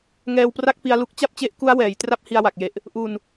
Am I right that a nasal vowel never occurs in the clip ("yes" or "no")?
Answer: yes